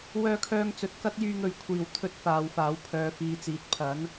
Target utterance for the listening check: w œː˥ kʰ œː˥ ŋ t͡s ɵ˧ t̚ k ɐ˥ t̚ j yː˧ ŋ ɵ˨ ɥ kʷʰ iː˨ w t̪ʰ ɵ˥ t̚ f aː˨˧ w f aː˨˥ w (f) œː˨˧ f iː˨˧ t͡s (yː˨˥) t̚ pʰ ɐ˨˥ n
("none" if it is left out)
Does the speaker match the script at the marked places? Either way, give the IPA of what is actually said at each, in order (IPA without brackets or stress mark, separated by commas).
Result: pʰ, iː˨˥